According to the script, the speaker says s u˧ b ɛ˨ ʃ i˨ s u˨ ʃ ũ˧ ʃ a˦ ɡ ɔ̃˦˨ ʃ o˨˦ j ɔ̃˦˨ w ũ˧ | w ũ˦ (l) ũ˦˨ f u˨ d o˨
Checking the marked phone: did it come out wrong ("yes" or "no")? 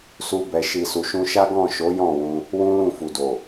no